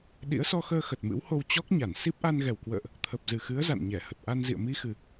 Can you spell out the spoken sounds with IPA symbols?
ɗ ḭ˧˥ ə̯ s ɔ˧ x əː˧ x ə˨˩ t̚ m ɨ̰˧˥ w h o˧ w t͡ɕ ɔ˦˥ k̚ ɲ a˧˩ n s i˦˥ p̚ ʔ a˧ n ɣ ɛ˨˩ w k w ə̰ː˧˨ ʔ | t̪ʰ ə˨˩ p̚ z ɨ˨˩ x ɨ˨˦ ə̯ z a̰˧˨ n ɲ ɛ˧˩ h ə˨˩ t̚ ʔ a˧ n z ḭ˧˨ ə̯ m i˧ x ɨ˨˩

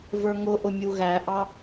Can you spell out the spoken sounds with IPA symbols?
v ə˞ ŋ ʊ ʔ ʊ mʲ u ɣ æ ʔ ɑ

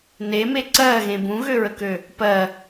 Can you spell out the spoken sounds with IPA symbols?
n e m e ǀ ɜː ɣ ẽ b ũ ɣ ø ɹ ə k ø | p ɜ

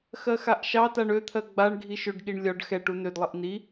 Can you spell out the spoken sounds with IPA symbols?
x ɜ x a ʔ ʃ ɑ t a ɳ ø t̪ʰ ɜ ɡ͡b a ɳ ɡʱ i ʃ ø ɖ ɠ i ɳ lʲ ɒ ɖ x ɛ ʈ u n ø d lˠ i ʔ n i

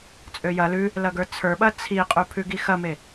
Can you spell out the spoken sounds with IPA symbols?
t͡sʼ ø j ɐ l ʉ | l ɐ ɡ ə˞ t͡sʰ ə˞ ɓ ɐ t͡sʰ i qʼ ʉ pʰ ʉ ɡ i x ɐ m e

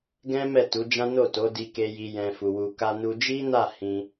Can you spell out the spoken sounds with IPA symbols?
ɡ ɛ̃˦ m ɛ˦˨ t u˨˦ d͡ʒ ã˦ n o˦˨ t o˨˦ d i˧ k e˧ j i˧ j ɛ̃˧ f u˧ w u˧ k a˧ n u˧ d͡ʒ i˦ n a˦˨ h ĩ˧

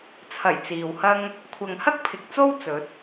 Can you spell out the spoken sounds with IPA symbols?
t͡sʰ ɐ˨˩ j t͡s iː˨ w h ɐ˥ ŋ | kʷʰ ɐ˨ ŋ h ɐ˥ k̚ pʰ ɪ˨ k̚ t͡s o˥ w t͡s ɵ˨˥ t̚

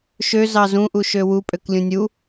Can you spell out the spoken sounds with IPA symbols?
ʃ ø z ɑ z ũ ʔ u ʃ ø w u pʼ ø k lʲ ũ nʲ u

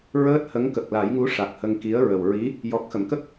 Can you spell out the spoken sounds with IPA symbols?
ɹ əː˦˥ t̚ h ə˧˥ ŋ k ə˨˩ k̚ l a˨˩˦ j ŋ u˧˥ ʂ a˨˩ k̚ h ə˧ ŋ k i˧˥ ə̯ ɹ ə˨˩ w ɹ i˧˥ | j ɔ˨˩ k̚ x ə˨˩˨ m k ə˦˥ k̚

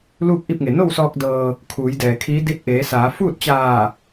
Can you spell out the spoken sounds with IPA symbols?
l uː˥˨ k̚ ʔ i˥˨ p̚ ŋ e˩ n o˥˨ w s ɔː˧ k̚ d ɤː˧ | kʰ uː˩˧ j d ɛː˩ kʰ iː˧˥ d i˧˥ t̚ ʔ eː˩˧ s aː˩˧ f uː˥˨ t̚ t͡ɕ aː˧˩

